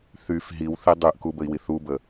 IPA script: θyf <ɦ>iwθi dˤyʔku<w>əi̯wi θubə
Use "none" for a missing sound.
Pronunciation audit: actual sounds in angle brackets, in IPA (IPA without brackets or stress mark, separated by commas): ɦ, b